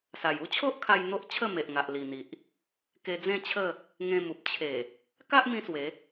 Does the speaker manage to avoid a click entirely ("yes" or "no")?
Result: yes